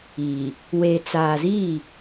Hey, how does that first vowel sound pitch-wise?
low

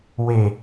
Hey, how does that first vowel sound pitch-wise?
falling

